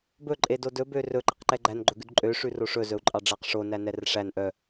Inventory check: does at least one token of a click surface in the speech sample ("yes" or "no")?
yes